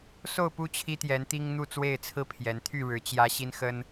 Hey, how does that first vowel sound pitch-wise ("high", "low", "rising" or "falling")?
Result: falling